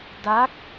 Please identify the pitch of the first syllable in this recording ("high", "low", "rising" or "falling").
rising